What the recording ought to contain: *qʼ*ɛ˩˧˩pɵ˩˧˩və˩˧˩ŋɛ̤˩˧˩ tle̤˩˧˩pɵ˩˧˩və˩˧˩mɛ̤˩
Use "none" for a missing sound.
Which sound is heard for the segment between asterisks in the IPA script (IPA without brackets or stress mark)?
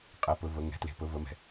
qʼ